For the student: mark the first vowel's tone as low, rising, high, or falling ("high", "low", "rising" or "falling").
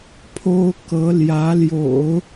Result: high